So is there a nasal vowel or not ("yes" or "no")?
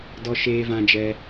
yes